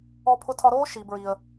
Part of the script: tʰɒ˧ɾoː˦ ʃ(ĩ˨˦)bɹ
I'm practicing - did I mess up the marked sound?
yes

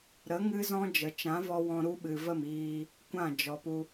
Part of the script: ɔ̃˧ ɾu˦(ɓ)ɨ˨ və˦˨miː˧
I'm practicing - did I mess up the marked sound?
no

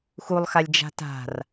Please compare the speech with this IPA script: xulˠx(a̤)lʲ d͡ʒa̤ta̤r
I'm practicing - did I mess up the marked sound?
yes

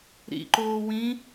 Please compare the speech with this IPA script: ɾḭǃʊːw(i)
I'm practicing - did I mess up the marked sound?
yes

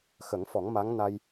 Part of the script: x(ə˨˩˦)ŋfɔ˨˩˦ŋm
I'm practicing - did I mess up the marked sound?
no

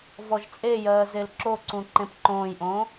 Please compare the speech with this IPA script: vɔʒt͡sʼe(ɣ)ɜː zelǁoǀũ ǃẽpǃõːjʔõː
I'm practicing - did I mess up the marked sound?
yes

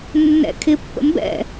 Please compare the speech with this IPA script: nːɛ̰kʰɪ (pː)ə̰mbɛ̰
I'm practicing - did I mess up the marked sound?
no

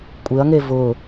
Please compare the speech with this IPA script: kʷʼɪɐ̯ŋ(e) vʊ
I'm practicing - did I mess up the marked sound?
no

